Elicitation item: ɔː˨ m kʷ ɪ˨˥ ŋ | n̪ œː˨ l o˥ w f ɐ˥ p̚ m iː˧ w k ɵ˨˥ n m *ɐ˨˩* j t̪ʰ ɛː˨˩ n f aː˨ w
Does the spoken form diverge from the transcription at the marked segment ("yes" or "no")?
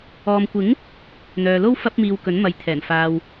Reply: yes